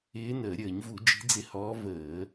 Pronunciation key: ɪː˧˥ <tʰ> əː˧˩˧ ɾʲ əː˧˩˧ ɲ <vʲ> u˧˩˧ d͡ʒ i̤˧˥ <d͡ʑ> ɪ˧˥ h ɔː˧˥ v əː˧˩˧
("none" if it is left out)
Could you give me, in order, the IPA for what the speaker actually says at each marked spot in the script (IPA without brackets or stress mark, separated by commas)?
n, v, d͡z